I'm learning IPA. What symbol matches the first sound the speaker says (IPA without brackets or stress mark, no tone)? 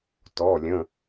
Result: t